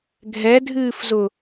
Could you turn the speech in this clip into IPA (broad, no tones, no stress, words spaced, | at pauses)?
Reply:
ɡʱɛdʱɨːfzʊ